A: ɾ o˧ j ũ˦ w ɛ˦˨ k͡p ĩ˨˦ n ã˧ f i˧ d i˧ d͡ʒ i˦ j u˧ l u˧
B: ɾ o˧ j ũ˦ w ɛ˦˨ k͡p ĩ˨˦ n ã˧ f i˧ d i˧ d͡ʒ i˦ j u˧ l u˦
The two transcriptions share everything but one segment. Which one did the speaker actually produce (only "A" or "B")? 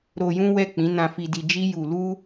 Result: B